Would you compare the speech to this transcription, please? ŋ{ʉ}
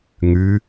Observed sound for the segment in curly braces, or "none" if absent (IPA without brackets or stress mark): ʉ